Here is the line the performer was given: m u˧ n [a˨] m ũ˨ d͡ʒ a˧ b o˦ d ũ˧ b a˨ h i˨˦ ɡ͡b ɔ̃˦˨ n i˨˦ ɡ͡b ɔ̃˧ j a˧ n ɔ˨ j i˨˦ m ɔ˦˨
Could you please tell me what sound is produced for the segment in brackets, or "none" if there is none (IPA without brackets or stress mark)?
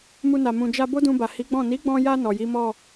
a˨